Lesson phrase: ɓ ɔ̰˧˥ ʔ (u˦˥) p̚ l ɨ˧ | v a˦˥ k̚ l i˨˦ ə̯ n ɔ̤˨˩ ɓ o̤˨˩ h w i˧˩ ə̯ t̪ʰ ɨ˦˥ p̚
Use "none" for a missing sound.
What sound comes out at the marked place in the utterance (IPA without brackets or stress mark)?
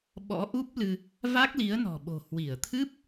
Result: u˦˥